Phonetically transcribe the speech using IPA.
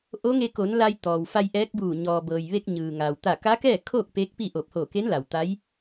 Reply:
ʔoː˧˥ŋe˧ko˩˧n la˧jt̪ɔː˩wfa˧j ʔɛː˧˥k̚buː˧˩ ɲɔː˩bɤː˩jʋe˧k̚ ɲɯː˩ŋa˩w t̪a˧˩ka˧˥kɛː˥˨kʰoː˥˨k̚ peː˧˥k̚pi˥˨ʔo˧˩p̚ hoː˧˩ke˧˥n la˩wt̪a˧˥j

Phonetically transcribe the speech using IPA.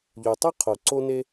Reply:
ʎu˨tˤɯ˦qʰo˨ ǀo˦ne˦

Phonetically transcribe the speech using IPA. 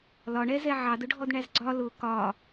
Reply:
lɒɳɛzɛ ʕɑdʊɖʱɔdɳæz ɡ͡ǀɒ lʊ kɒ

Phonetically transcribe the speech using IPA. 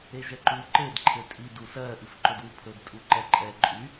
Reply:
eʒɛǃu ǃed ǃʰetʼi dusɜ ʔifǃɵdwupʰɵd tʼuǃɛǃʼɛ ǃʼy

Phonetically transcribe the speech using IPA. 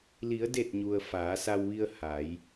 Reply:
li˩˧ə̯de˧˩t̚ɲu˩ə̯ faː˩˧sa˧wʋi˧ə̯ ha˩˧j

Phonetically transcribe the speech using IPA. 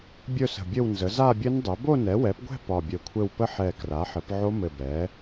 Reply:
bʲɵ˥˧sə̤˧˩ bʲɘ˥˧wnzə˩˥ za˥˧bʲɘ˦˥ndˤɛ˩˥ bo˥˧nɛ˩˥wɛ˩˥pɡʷɛ̤˥˧ pɒ˧˩bʲɵ˧˩kʷʰɘ˥˧w pə˦˥ħɛ˧˩ kra˩˥ħɘ˩˥p ʕo˦˥mɘ˧˩bɛ˩˥

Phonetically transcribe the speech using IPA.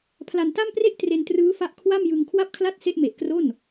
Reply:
pʰla˧nta˥˩mpre˥˩ʔ tre˧ntrɯː˦˥fa˦˥ʔ kʰwa˥˩mjɯ˧ŋ kʰwa˦˥p̚kʰla˦˥t̚ se˦˥ʔme˨˩ʔkro˥˩n

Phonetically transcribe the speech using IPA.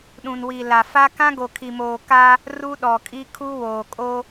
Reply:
ɗũ˨nwi˨ la˨fa˦ kã˦ɡo˨ kʰi˨moː˨ ka˦ | ru˦ɗɔ˨kʼi˦ kʰu˦ woː˨kʼo˦

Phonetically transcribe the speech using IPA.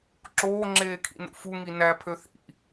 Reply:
ǁoːŋ͡ǁeːkʰḭnṵ fuŋi næpʰø θḭ

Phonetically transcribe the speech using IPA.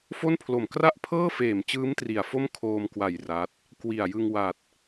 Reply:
fo˥˩npʰlo˨˩m kra˥˩ʔpʰɤː˥˩feː˨˩mt͡ɕɯː˦˥m tri˨˩a̯fo˥˩mkʰoː˧mkwa˨˩j ra˦˥t̚ | kwi˨˩a̯jɯ˧ŋ wa˨˩t̚

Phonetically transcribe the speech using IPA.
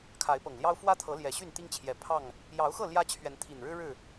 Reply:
kʰa˨˦ɪ̯pɤ˨˩ŋljɑ˦ʊ̯ fwä˦t̪ʰɤ˨˦ ljɛ˨˩ɕy˥˨nt̪i˦ŋt͡ɕʰjɛ˨˩ pʰɑ˥˨ŋ | jɑ˨˦ʊ̯xɤ˥˨ ljä˦t͡ɕʰɥɛ˨˦nt̪ʰi˨˩nɻɻ̩˦ ɻɻ̩˥˨

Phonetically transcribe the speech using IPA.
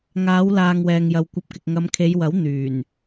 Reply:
ŋaː˨˧wlaː˨ŋ wɛː˨ŋjɐ˨wkʷɐ˧p̚kɪ˨k̚ ŋɐ˨˧mkʰe˨˧jwɐ˨˥w n̪yː˨˩n

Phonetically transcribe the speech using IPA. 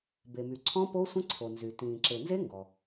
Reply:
be˩my˩ǀʰɔ̃˦˥ po˦˥sʷə̃˦˥ǀʰo˩nzy˩ tĩː˩ ǁe˩nze˦˥ ŋɡɔ˩

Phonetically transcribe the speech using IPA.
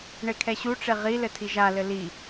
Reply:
ɳekʰɛɕuʈ͡ʂe ʁi lɘtʰiʒalɘ li

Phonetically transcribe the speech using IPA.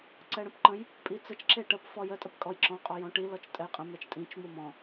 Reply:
ǀɛɽə̃pǃə̃j | pʼit͡sət͡ʃ ǁeʈəp fɔjə tʼəpkʼɔjǁɔ̃ qʼɔjɔ̃ʈi lɔt͡ʃtʼɛjqʼə̃ mɛt͡ʃtʼĩt͡ʃ mumɔ̃

